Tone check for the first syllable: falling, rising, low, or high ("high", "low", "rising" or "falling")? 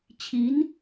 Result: rising